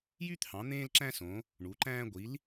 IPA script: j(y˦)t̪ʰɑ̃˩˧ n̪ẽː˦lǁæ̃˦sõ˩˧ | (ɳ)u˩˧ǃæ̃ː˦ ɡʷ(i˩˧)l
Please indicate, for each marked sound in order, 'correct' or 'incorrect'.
correct, correct, correct

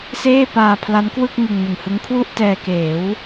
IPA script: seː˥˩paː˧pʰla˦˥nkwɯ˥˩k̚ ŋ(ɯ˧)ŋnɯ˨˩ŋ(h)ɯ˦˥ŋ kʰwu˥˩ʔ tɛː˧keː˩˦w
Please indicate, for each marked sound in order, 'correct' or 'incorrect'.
correct, correct

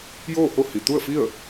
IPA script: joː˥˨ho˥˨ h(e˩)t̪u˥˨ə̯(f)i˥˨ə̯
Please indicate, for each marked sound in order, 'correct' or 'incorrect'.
incorrect: i˩, correct

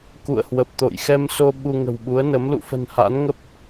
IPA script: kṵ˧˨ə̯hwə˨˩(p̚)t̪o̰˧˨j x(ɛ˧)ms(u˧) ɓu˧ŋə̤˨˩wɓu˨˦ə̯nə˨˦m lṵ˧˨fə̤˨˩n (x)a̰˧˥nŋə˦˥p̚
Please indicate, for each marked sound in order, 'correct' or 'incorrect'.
correct, correct, incorrect: o˧, incorrect: h

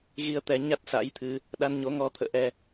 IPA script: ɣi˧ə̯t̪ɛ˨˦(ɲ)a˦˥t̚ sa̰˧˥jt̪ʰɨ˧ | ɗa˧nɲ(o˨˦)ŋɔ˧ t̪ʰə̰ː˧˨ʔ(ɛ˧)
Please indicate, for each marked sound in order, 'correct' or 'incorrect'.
correct, correct, correct

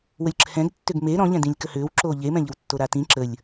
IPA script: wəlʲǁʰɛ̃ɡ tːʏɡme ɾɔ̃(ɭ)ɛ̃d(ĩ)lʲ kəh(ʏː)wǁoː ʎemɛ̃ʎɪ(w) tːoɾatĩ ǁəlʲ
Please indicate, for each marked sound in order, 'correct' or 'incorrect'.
incorrect: ʎ, correct, correct, correct

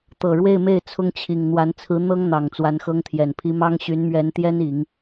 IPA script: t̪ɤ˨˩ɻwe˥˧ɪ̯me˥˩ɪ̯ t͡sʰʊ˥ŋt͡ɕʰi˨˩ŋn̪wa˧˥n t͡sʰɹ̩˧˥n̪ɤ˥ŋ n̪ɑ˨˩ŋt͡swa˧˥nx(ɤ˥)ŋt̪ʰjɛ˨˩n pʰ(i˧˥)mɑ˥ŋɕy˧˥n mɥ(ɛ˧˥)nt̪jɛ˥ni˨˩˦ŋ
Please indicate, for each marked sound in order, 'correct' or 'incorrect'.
correct, correct, correct

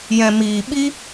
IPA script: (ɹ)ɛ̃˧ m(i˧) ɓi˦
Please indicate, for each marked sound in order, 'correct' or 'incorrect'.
incorrect: j, incorrect: iː˧

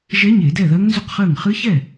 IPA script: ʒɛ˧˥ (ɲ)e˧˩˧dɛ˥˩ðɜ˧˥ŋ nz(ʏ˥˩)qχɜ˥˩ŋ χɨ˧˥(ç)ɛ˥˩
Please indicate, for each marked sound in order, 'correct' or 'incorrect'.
correct, correct, correct

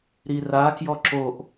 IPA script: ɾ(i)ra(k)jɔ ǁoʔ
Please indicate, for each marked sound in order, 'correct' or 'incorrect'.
correct, correct

